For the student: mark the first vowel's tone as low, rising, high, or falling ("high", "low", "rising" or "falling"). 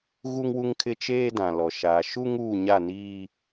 high